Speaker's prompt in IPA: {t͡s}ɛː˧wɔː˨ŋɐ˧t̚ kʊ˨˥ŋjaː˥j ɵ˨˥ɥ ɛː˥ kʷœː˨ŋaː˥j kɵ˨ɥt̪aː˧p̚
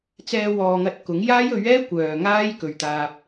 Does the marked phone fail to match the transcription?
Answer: no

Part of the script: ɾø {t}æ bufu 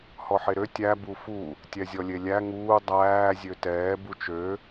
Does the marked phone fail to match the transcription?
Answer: yes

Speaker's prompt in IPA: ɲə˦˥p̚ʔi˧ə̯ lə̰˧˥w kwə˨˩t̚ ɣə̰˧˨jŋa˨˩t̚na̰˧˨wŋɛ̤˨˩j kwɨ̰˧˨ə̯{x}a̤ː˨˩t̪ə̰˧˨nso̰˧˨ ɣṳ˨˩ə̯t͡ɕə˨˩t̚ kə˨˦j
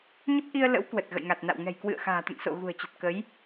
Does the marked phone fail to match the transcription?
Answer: no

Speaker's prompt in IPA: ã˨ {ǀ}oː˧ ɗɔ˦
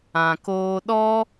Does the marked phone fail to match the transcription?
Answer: yes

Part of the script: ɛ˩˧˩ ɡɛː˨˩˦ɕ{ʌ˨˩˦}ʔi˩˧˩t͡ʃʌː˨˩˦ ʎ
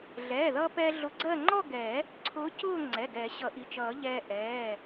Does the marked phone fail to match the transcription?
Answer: no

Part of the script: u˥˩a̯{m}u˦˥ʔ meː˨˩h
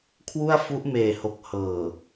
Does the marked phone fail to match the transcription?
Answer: yes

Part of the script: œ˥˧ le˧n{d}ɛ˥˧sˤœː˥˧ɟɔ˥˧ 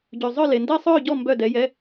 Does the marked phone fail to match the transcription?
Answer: no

